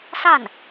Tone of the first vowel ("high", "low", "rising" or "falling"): falling